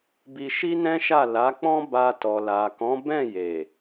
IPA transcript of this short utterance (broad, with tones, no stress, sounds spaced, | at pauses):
b i˧ ʃ i˦ n ɛ̃˦ ʃ a˦˨ l a˨˦ k͡p ɔ̃˦ b a˧ t ɔ˨ l a˨ k ɔ̃˨˦ b ɛ̃˦˨ j e˨